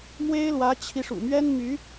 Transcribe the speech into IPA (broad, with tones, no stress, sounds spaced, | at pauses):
m w e˥ ɪ̯ l w ä˧˥ t͡ɕʰ i˧ ʂ ṵ˨˩ m ɥ ɛ˥ n m y˧˥